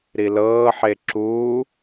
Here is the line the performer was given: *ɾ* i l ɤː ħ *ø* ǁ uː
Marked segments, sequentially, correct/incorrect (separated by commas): correct, incorrect